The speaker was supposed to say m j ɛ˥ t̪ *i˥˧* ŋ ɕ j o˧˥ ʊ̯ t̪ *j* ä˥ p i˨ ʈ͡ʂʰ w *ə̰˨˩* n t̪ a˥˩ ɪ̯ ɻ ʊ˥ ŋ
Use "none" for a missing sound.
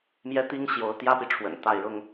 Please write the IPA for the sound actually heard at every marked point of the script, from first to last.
i˥, j, ə̰˨˩

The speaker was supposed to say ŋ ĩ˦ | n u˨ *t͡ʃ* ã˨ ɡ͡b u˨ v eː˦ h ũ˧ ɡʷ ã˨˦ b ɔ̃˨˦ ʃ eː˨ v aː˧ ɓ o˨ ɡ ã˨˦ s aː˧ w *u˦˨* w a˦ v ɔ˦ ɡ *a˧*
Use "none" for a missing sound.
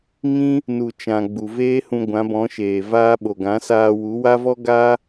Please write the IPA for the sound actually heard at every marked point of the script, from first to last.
t͡ʃ, u˨˦, a˦

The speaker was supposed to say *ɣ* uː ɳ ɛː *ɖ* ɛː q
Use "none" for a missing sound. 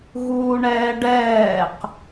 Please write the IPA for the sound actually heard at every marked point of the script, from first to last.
ɣ, ɖ

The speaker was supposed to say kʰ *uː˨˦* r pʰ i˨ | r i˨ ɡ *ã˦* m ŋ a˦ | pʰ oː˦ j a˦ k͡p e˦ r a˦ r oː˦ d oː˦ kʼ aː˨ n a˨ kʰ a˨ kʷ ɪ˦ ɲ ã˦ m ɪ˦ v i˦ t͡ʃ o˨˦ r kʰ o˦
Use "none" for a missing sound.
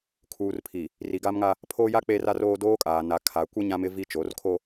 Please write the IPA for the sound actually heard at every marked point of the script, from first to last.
uː˨, a˦

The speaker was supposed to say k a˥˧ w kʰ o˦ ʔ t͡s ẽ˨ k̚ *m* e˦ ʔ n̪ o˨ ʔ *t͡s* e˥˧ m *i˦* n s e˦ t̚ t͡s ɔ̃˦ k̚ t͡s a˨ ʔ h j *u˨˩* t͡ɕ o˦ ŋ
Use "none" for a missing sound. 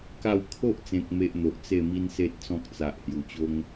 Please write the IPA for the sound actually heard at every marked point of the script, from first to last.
m, t͡s, i˦, u˨˩

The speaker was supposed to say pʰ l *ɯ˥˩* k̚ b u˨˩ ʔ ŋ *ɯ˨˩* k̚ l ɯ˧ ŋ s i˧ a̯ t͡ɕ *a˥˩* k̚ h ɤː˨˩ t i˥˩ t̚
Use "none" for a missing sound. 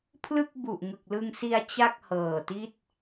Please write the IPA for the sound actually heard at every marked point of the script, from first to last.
ɯ˥˩, ɯ˨˩, a˥˩

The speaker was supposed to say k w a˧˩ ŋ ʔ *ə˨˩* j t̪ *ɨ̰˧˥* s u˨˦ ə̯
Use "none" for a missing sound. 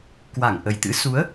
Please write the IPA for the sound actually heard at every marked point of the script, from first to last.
ə˨˩, ɨ̰˧˥

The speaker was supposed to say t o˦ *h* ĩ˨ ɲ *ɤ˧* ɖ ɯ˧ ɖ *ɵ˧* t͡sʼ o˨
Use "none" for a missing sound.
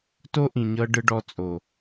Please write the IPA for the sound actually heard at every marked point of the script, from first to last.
ʔ, ɤ˧, ɔ˧

